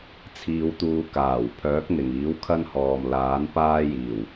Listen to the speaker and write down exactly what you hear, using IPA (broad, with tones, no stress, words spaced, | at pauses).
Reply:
t͡sʰiː˨˧wt̪uː˨˧kaː˨˩w pʰœː˨˥k̚n̪ɪ˨˩ŋiː˨˥w kʰɐ˥nhɔː˨m laː˨˥n paː˥jiː˨˩w